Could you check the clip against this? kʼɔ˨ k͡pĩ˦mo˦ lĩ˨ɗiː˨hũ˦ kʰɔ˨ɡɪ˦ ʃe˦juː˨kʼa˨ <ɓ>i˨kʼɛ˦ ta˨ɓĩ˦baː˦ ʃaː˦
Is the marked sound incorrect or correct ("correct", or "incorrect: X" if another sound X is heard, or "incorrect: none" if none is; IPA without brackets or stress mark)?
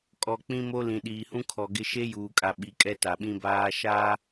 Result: correct